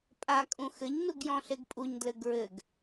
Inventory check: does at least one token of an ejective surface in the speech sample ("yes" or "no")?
yes